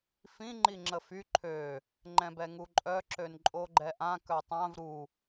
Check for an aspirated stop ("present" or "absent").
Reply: present